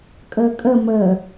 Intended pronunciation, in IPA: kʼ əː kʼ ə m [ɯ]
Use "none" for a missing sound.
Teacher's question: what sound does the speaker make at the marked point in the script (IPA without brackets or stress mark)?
ə